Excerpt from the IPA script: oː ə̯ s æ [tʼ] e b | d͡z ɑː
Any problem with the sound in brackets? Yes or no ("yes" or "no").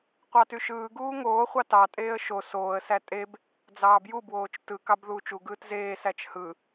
no